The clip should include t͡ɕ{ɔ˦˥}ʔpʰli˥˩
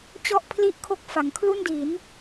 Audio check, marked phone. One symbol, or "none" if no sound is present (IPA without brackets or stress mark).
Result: ɔ˥˩